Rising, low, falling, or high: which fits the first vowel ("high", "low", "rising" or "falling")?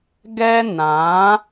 high